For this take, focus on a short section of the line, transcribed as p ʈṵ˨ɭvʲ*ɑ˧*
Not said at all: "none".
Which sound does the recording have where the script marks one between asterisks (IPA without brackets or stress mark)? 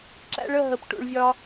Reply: ɒ˧